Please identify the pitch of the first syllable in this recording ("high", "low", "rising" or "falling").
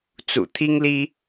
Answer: low